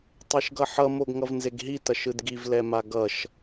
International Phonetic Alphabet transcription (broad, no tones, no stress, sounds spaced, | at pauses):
tˤ e ʃ ɡ ʌ ħ ʌ m o ɡ ŋ ʌ v n z e ɡ ɦ i t ʌ ʃ ɯ d ɡ i v l ɛ m a ɡ ʌ ʃ